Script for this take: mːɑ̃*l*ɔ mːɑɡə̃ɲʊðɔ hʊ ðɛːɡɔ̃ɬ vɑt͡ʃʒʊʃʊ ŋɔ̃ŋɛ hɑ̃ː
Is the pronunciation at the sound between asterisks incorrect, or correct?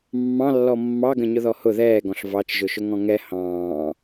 incorrect